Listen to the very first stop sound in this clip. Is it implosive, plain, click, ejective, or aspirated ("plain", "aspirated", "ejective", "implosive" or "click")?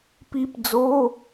plain